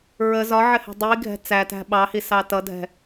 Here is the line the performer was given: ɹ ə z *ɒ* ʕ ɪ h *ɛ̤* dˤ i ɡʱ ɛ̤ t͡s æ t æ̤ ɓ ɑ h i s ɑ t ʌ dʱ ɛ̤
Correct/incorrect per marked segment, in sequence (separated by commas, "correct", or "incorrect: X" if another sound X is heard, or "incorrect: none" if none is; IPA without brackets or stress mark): correct, correct